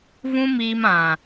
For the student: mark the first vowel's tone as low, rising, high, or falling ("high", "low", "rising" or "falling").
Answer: high